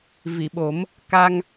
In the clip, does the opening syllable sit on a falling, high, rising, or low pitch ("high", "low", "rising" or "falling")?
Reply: low